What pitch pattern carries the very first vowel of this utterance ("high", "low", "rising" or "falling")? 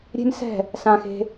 high